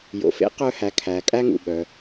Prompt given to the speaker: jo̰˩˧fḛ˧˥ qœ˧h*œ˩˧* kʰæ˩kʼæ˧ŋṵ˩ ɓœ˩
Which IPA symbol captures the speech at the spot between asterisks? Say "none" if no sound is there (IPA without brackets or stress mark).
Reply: æ˩˧